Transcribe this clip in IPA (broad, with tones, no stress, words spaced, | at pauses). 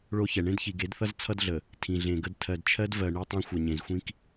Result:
ɭo˦çɛ˨ ɳẽ˦dçi˨ɡe˨˦dθʌ˦z t͡sʰʌ˦dɮə˨ | tʰĩ˨ɮẽ˨ɡə˦d tʰɜ˨dt͡ʃʰɜ˦dvɜ˨ ɳi˦tˤĩ˦ xʷʌ˨ɲẽ˨zxʷĩ˦k